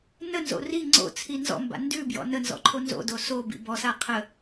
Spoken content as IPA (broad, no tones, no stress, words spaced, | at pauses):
nənzo̰ ri ŋ͡ǀo̰t͡sʰi nzɔ̰mba̰ ndʉbjɔ̰ nənzɔ̰ǃʰo nzo̰do sobḭ bɔsa qʰə